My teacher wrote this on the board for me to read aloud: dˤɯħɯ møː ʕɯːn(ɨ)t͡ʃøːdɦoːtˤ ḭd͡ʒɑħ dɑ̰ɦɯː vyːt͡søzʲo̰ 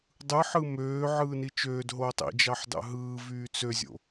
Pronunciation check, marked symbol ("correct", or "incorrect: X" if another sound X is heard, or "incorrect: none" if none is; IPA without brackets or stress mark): incorrect: i